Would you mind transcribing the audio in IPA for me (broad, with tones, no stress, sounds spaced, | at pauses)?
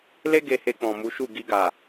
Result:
l e˦ ɡ e˧ h e˧ k͡p ɔ̃˨ m u˨˦ ʃ u˦˨ ɡ i˧ ɡ a˨